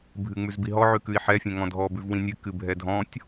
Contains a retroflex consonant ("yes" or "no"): no